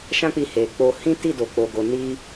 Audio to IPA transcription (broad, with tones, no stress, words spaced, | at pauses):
ʃã˦k͡pi˧ he˨ k͡po˧ hĩ˦ti˦˨ do˨k͡po˨ɡo˨ ni˧